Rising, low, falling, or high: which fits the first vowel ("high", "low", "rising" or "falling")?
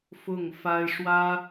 falling